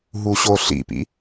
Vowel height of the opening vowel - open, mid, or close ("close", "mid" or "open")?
close